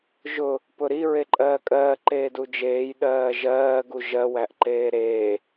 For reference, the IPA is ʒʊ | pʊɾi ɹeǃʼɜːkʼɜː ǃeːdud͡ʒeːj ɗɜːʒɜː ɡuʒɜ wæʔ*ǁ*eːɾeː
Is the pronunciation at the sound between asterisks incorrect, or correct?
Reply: incorrect